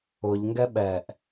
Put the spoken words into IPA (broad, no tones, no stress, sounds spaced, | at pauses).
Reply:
ʊ ʎ ŋ ɡ ɛ ɓ ɛ ʔ